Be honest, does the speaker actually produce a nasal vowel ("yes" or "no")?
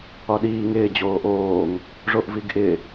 no